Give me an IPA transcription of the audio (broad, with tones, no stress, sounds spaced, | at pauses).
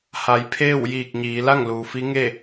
h a˩˧ j pʰ eː˥˨ w j iː˧˩ k̚ ɲ iː˩˧ l a˥˨ ŋ l uː˩ f i˧˥ ŋ e˥˨